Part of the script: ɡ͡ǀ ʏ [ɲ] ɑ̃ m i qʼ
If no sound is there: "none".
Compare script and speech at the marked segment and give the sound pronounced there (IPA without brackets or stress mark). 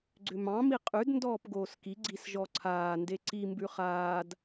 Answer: m